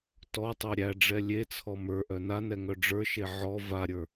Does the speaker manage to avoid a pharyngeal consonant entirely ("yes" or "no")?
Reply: no